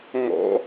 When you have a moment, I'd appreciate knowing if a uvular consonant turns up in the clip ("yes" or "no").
no